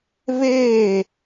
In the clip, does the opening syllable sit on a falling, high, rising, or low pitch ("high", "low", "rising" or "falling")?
falling